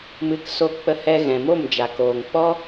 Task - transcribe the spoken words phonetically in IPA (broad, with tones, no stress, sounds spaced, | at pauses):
m ɨ˨˦ k s o˧ k͡p ə˧ h ɛ˧ ɣ ɛ̃˨ m o˦˨ m d͡ʒ a˨ k oː˨ ŋ k͡p ɔ˦